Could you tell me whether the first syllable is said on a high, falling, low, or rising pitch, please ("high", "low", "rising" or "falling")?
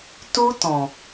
high